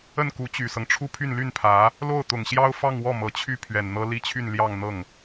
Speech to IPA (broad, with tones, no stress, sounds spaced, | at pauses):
ə˥˩ n k u˧˥ t͡ɕ y˨˩ s ɤ˦ ŋ ʈ͡ʂʰ u˥ pʰ y˥˧ n l y˥˩ n pʰ ä˧˥ | l o˥˩ ʊ̯ t̪ ʊ˨˩ ŋ ɕ j ɑ˥ ʊ̯ f ɑ˥˧ ŋ w ɔ˥˩ m ɤ˨˩ t͡ɕʰ y˥˩ pʰ ɥ ɛ˨˩ n n̪ ɤ˥ l i˥ t͡ɕʰ y˥˧ n l j ɑ˥˧ ŋ n̪ ɤ˥˩ ŋ